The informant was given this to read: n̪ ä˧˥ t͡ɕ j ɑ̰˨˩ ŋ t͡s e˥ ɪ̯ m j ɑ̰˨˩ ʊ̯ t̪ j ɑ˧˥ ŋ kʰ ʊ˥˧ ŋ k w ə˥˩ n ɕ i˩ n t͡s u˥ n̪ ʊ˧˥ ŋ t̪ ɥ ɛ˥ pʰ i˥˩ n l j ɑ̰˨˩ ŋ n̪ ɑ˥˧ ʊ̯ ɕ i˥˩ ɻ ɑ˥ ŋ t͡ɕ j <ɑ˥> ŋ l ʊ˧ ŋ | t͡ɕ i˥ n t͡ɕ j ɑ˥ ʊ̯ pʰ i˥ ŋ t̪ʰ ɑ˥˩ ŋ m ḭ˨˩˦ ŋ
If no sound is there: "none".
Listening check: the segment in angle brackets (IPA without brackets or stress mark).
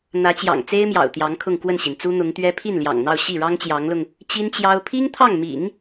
ɑ˧˥